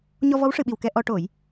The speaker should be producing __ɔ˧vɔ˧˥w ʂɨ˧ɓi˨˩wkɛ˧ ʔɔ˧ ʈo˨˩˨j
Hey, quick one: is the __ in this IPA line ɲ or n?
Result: ɲ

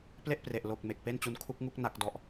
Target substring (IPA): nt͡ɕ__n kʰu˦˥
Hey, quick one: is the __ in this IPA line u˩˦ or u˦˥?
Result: u˦˥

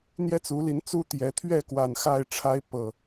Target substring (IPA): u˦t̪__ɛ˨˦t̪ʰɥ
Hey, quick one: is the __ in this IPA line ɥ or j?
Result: j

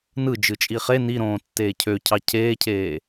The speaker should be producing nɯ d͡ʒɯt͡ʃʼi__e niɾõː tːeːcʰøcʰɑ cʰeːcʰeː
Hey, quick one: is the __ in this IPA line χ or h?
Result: χ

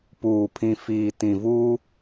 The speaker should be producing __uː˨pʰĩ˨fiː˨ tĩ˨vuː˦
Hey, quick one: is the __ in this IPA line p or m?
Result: p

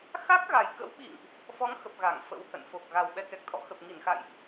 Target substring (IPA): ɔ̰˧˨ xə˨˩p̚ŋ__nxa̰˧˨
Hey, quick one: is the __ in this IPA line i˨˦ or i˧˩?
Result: i˧˩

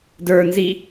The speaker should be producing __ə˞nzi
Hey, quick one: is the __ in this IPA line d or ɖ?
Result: d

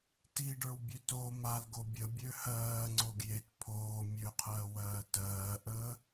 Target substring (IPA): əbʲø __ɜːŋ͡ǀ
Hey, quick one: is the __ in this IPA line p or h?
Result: h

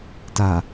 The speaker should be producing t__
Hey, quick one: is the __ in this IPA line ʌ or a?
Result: a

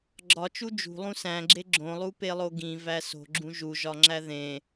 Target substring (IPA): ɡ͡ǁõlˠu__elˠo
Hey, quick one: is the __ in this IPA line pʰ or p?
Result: p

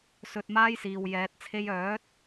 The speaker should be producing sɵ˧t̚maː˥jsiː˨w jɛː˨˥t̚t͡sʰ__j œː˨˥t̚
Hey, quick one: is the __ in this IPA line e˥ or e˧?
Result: e˥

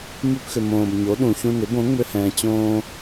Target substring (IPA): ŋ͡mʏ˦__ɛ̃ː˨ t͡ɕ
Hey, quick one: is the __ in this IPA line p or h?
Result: h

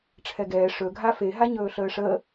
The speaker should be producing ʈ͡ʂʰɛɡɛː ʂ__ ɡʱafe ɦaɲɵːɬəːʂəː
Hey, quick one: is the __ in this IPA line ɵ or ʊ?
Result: ɵ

